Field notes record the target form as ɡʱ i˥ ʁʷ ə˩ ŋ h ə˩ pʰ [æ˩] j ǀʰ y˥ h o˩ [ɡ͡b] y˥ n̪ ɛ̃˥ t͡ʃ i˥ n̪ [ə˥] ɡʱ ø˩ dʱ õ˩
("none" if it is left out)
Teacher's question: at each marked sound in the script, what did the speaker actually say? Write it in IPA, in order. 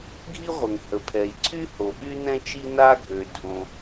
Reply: ɛ˩, ɓ, a˥

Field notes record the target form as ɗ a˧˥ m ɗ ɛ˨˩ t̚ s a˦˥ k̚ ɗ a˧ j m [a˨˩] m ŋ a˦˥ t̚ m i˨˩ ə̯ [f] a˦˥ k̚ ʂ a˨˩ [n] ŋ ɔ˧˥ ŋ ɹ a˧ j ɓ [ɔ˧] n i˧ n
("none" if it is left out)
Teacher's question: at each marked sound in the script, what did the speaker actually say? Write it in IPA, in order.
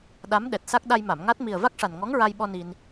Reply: a˨˩˨, v, n, ɔ˧

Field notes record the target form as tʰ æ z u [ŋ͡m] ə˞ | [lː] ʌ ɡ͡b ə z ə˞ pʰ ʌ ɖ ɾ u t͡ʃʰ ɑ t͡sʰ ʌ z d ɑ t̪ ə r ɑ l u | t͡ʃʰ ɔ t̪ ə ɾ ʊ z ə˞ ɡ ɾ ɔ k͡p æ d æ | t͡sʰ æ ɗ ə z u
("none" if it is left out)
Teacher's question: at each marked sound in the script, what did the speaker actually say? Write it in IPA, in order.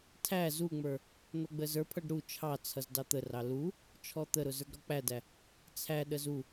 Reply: ŋ͡m, n̪

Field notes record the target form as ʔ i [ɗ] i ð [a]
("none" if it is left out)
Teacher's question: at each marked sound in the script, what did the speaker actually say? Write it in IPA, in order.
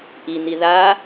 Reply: n̪, a

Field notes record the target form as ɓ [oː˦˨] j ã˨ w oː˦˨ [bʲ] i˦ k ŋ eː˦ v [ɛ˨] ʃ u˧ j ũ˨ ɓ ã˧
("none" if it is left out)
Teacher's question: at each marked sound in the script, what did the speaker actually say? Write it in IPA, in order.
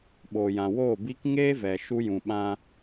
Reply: oː˨, b, ɛ˨

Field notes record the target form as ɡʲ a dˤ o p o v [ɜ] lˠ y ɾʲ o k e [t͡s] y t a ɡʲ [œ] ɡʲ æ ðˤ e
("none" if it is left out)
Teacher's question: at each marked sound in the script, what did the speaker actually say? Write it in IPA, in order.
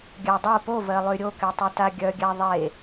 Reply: ɜ, tˤ, œ

